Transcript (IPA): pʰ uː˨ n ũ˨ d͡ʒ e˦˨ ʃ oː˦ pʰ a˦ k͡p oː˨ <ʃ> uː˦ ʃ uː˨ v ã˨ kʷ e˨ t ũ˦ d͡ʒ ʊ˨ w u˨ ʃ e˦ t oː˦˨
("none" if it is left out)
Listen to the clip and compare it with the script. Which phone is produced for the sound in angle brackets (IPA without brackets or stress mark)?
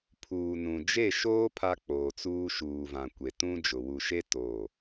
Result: t͡s